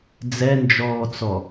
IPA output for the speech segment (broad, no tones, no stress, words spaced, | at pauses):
d͡zɛnd͡ʒɔːt͡sɔ